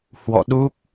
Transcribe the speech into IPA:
h w ɔ̰˧˨ ɗ u˦˥ k̚

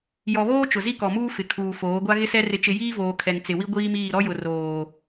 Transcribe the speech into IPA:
j ɔ˨ β oː˦ t͡ʃ ʊ˨ z i˦ k ɔ˨ m uː˦ f ɪ˨ kʰ uː˨ f oː˨˦ ɡʷ a˦ ɣ ɪ˦ s ɛ˦ r ɪ˦ t͡ʃ ɪ˦ j iː˦ v oː˨ kʰ ɛ˨ ŋ t͡s ɪ˨ w i˦ ɡʷ iː˦ m iː˦˨ ɾ ɔ˦ j ʊ˨ r oː˨

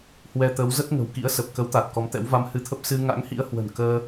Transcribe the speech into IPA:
h w ɛ˧ t̪ ə˨˦ w z ə˦˥ t̚ ŋ ə̤˨˩ w k ḭ˧˥ ə̯ s ə˨˩ p̚ k ə˨˦ w t̪ a˨˩ t̚ k ɔ˨˦ m t̪ ɛ̰˧˥ w v a˧ m h ɨ˧ t̪ʰ ə˦˥ p̚ s ɨ˧ ŋ a̰˧˥ ŋ h ḭ˧˥ ə̯ h w ə̤˨˩ n k əː˧

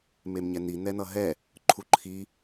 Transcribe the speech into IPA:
m e m ɲ ɛ n i n ɛ n ʌ ɦ ɛ | ǃʰ u ǃʰ i

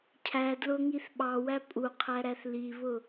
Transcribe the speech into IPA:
cʰ æ d l ʊ ŋ i θ ɓ ɑ w æ pʼ u qʰ æ ɾ æ θ l i β ʊ

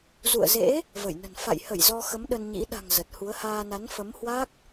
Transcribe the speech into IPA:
z ṵ˧˨ ə̯ z ḛ˧˥ | v ə˧˩ j n ə̤˨˩ n f a̰˧˨ j h ə˧˩ j z ɔ˧ x ə˨˦ m ɗ ə˧ n ɲ ḭ˧˥ ɗ a̤˨˩ ŋ z ə˨˩ t̚ h u˨˦ ə̯ h aː˧ n a˨˦ n f ə˨˦ m h w a˦˥ k̚

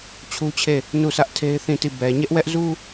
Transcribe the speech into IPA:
t͡ɕʰ u˦ t͡ɕʰ e˦˨ | n u˦˨ s ä˦ ʔ tʰ e˦ ɪ̯ θ ĩ˦˨ t i˦˨ b ɛ˨ ɲ ɛ˦ ʔ w ɛ˦ ʔ z u˦

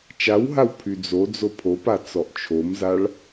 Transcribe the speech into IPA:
t͡ʃ a w ɦ a w pʰ y d͡z o d͡z o pʰ o p a t͡s ɔ ʔ t͡ʃʰ o m z a ɭ

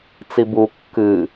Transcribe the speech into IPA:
t͡s i b u kː ɨ

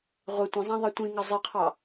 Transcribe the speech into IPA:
ʁʷ ɪ tʷ ə̃ zˤ ã ðˤ ɜ tʷ ĩ ŋ ʌ zˤ ɜ qʰ ɑ

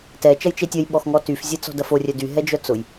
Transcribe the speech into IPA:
t ɛ t͡ʃ ɐ j t͡ʃ e tʲ ɐ j ɓ ɔ x ŋ ɔ t y f zʲ e t͡s ɔ̤ d ɐ f o rʲ œ d y ɦ ɛ d͡ʒ œ t͡s ʊ j

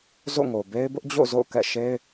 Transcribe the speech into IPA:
z o̰˦˨ ŋ o˨ b e˦ ɪ̯ b ʊ˦ ʔ d͡ʑ o̰˦˨ z o̰˦˨ ʊ̯ k ɛ̰˦˨ ʃ e˦ ɪ̯

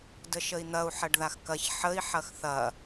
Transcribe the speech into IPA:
d ə ʃ ə i̯ n̪ ɐ u̯ ħ ɐ ɖ ð a x k ɐ ç ħ ə i̯ ħ ɐ x θ ɐ

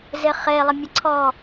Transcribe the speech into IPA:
z ɪ χ e lˠ ə mʲ ə ǀʰ ɔ

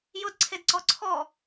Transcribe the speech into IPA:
j ʊ d ǀʰ e d ǀ ɔ ǀʰ ɔ

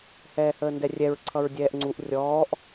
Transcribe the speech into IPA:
h ɛː h əː n d ɛ rʲ ɛ ɹ ǀʰ ʌ ɹ dʲ ɛː ʔ ŋ͡ǀ u ʔ rʲ ɔː ʔ

